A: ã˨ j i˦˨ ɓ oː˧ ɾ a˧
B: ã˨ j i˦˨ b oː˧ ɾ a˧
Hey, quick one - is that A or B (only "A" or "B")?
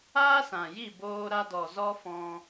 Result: B